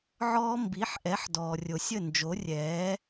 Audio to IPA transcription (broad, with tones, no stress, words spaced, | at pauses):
ʕɔː˧ mbi˨˦ħʔɛ˨˦ħ dɔː˨rʲo˨sʲə˦˨ nd͡ʒo˨˦rʲɛː˨˦